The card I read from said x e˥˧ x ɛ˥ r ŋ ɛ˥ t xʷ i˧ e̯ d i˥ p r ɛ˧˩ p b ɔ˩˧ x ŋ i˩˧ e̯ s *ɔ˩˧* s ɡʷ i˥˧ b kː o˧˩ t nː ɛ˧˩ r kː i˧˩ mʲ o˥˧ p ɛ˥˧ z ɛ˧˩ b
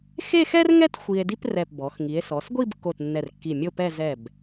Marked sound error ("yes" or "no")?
no